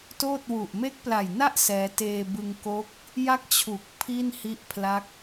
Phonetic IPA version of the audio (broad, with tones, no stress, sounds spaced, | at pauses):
t oː˥˩ t̚ w u˨˩ ʔ m e˦˥ k̚ p l a˨˩ j n a˥˩ ʔ s ɛː˦˥ t eː˧ b ɯ˧ ŋ k oː˦˥ k̚ | j a˥˩ k̚ t͡ɕʰ u˨˩ k̚ pʰ i˥˩ n h i˦˥ ʔ pʰ l a˦˥ k̚